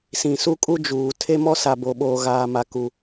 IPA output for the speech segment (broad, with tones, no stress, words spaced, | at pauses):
sĩ˨su˦kʼu˦ d͡ʒuː˨ tʰe˦ mɔ˦sa˨bo˨ɓoː˨ ɣaː˨ma˨ ku˨